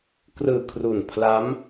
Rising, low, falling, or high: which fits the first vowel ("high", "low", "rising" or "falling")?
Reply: low